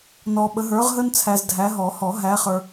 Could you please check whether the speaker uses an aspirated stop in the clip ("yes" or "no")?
yes